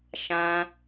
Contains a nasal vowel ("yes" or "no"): yes